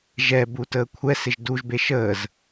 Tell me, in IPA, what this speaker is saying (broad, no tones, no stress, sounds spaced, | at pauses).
ʒ ɛ b u t əː kʷʰ ɛ s ɪ ʒ d u ʒ b e ʃ əː z